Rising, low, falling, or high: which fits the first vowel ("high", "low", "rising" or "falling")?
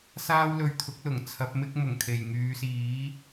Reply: high